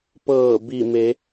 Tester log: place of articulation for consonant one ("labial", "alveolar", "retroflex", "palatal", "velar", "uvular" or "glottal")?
labial